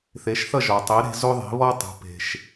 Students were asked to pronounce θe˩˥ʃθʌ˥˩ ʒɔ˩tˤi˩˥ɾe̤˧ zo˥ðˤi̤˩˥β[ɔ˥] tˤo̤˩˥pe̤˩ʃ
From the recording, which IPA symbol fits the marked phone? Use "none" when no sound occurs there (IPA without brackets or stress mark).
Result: ɔ˥